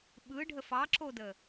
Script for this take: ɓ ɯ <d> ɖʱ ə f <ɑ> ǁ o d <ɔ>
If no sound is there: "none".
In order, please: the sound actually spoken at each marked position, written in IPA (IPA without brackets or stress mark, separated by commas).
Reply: none, ɑ, ə